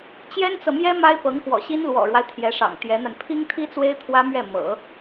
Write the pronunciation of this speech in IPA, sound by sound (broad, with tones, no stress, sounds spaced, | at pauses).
t͡ɕ j ɛ˥ n t͡s ɤ˨ m j ɛ˥ m a˥ ɪ̯ p ɤ˧˥ ŋ x w ɔ̰˨˩ ɕ i˥ n l w ɔ̰˨˩ ɻ w a˦ ɪ̯ t̪ʰ j ɛ˧˥ ʂ ɑ̰˨˩ ŋ t̪ j ɛ˧˥ n̪ a˧ n pʰ i˥ ŋ t̪ʰ i˥ t͡s w e˥ ɪ̯ t̪ʰ w ä˥ m ɥ ɛ˥˩ m ɤ̰˨˩˦